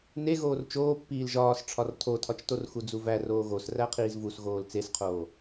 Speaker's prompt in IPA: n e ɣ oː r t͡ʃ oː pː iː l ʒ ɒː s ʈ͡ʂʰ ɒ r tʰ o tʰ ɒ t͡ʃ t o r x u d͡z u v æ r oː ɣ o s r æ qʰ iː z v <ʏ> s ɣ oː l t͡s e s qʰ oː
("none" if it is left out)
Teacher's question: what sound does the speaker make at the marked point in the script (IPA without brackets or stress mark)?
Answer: u